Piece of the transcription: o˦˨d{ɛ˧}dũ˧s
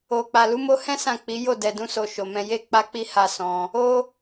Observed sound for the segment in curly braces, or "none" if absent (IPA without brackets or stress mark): ɛ˨